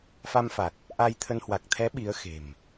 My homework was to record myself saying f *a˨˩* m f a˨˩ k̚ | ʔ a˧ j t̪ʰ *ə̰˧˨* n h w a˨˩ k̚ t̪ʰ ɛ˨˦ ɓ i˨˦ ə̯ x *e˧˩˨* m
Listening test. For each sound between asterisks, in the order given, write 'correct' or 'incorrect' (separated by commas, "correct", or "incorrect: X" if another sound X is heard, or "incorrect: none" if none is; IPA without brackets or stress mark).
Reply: incorrect: a˧, incorrect: ə˧, incorrect: e̤˨˩